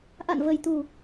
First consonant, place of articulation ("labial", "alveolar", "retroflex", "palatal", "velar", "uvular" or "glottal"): glottal